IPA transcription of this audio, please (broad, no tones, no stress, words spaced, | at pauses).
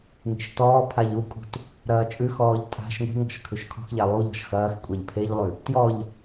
ŋe̤ʃtɔːpʰaʎ ukʼṳt | ɾɐːt͡ʃʼʉxɔːʎ tʼa̤ʃ ŋʷe̤ŋɔ̤ʃ kʰʉʃkʰɔ̤xʎæ lˠuʎɔ̤ʃ xɐːx kʷʼɛʎpʰeʎlˠʉ | tjɔʎ